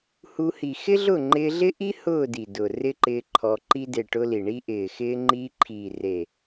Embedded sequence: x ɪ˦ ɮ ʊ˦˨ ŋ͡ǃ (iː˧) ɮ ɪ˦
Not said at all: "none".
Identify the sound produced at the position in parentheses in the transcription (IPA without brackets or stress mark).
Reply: ɪː˧